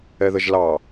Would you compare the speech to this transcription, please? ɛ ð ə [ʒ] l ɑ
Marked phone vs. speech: correct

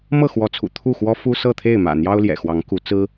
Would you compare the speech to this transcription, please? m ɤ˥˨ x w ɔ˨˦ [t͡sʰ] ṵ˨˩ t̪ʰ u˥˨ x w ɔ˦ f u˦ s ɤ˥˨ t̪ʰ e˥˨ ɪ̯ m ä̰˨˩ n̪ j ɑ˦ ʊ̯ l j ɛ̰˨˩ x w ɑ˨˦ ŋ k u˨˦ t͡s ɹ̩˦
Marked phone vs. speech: correct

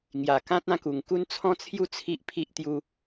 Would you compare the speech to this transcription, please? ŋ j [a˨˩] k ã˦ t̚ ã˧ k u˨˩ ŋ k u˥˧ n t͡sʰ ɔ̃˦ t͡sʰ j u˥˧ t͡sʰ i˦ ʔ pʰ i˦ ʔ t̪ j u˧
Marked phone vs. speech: correct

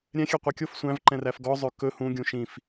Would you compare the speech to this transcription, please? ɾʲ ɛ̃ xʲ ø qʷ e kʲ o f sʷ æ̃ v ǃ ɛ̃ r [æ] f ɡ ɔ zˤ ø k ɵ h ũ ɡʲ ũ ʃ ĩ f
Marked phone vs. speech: correct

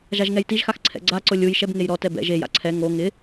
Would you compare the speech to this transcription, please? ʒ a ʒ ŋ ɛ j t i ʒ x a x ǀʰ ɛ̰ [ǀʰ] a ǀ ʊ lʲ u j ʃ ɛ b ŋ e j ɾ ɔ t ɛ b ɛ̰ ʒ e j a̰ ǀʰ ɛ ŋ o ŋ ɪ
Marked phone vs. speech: incorrect: ɡ͡ǀ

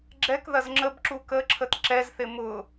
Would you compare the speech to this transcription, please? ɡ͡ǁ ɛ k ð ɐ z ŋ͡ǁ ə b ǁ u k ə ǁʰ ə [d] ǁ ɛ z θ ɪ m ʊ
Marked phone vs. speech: incorrect: t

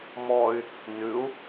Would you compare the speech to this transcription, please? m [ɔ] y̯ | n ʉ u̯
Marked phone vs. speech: correct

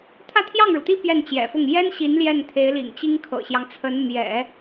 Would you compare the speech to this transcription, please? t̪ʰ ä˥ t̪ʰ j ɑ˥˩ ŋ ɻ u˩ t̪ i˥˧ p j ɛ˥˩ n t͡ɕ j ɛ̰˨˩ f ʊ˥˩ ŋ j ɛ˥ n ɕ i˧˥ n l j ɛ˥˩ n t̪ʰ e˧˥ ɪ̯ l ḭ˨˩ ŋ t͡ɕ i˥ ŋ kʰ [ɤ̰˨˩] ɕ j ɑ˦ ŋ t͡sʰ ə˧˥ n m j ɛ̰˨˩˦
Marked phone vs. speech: correct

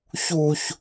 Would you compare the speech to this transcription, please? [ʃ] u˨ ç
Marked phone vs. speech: incorrect: ç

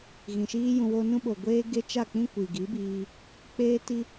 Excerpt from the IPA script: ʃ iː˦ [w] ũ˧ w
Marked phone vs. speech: incorrect: j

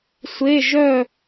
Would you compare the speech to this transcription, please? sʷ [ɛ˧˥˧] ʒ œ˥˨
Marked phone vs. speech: incorrect: e˧˥˧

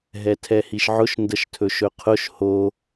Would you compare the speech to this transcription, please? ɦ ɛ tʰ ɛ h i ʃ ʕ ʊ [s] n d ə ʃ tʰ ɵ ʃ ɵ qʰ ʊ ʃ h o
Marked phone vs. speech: incorrect: ʃ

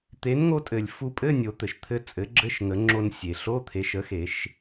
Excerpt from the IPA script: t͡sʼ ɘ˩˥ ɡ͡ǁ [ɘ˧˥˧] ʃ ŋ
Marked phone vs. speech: correct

